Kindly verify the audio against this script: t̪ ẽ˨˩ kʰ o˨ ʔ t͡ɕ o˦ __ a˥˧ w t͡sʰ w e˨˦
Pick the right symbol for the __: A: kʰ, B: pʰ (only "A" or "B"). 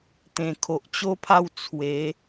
B